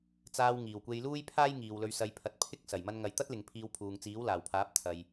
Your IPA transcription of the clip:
t͡saː˧w ŋiː˨˩wkʷe˧jluː˥jpʰaː˥j ŋiː˨wlɵ˧ɥsɐ˧j pʰɐ˧t̚ pʰɪ˥k̚ sɐ˨˩j mɐ˧nŋɐ˨jt̪ɐ˥t̚ lɪ˨ŋpʰiː˧wpʰuː˨ŋ t͡siː˨˥wlaː˨˩wpʰaː˨˥p̚ t̪ʰɐ˨j

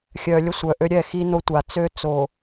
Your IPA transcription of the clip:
xʲœ˨lʲə˦sʷœ˨ ʔø˦ɾʲɛ˦˨ xi˦no˦tʷa˨ t͡sø˦t͡so˨

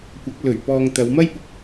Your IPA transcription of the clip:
kʷɐ˨˥k̚ lɵ˨˩ɥ pɔː˨ŋ t̪ɐ˨˧wmɐ˥jpʊ˧k̚

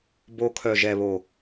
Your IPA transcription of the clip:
bo˧kʰœ˨ ʒɛ˨βo˨

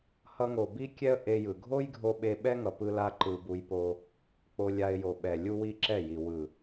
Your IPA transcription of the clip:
hʌ˧ŋo˨ bi˦kʲɛ˦ə̯ ʔe˧jɯ˨ ɡʱo˦jɡʱo˧ ɓe˧ɓɛ˦ŋʌ˨ pɯ˦la˦ǃɯ˧ bu˧jpo˧ | k͡po˧lʲa˧ɪ̯jo˨ ɓɛ˨ lʲu˦wi˦ǁɛ˦˨ji˨ wɯ˨

